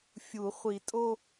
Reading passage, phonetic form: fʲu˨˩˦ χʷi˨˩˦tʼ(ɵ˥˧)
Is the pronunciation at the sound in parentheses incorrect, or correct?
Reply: incorrect